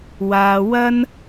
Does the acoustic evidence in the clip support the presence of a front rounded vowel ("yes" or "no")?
no